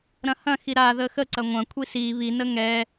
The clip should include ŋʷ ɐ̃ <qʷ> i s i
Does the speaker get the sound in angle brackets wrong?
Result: yes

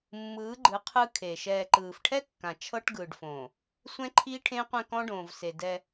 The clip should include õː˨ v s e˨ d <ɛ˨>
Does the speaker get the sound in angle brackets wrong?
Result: yes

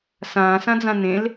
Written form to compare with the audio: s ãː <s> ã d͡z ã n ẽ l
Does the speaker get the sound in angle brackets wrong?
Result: no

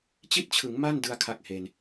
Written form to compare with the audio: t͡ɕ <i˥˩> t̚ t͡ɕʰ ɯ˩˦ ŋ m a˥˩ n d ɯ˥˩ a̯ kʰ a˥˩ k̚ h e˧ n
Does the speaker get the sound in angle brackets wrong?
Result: no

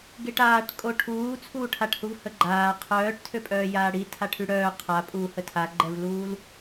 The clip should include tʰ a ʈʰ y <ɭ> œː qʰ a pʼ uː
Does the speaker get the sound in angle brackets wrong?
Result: yes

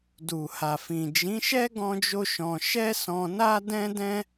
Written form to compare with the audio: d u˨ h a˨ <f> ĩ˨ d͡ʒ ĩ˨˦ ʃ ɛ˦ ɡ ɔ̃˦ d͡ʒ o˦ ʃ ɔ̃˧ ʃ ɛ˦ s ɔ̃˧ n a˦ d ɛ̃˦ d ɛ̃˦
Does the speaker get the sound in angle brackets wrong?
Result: no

